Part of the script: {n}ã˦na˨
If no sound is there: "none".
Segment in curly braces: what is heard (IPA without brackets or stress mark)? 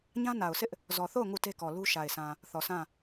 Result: ɲ